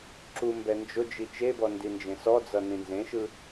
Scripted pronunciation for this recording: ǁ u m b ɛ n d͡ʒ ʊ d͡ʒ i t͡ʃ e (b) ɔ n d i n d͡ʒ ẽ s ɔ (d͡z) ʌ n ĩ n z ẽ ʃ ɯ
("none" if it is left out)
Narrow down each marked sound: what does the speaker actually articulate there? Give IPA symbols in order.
b, d͡z

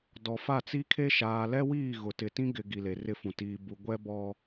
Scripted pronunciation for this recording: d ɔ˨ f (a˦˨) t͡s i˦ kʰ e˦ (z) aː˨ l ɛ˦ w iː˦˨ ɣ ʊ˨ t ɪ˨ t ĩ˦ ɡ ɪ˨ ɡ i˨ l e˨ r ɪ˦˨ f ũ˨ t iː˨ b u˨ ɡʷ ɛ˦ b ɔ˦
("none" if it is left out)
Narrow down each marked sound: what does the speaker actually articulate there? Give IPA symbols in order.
a˦˨, ʃ

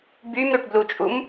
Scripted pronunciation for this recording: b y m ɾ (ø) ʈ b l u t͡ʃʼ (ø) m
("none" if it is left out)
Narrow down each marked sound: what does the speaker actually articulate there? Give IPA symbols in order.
ø, u

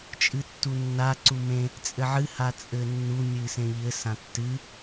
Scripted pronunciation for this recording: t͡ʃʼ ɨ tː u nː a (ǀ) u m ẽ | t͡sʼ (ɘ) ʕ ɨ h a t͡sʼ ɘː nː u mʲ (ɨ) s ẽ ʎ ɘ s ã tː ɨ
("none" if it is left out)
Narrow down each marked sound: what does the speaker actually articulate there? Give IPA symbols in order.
ǀ, ɘ, ɨː

